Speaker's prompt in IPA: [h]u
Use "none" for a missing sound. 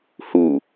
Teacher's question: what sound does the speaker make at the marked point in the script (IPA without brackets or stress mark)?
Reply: h